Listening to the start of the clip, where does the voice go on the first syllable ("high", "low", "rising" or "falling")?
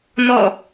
falling